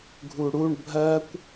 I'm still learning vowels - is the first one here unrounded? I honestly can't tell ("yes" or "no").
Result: no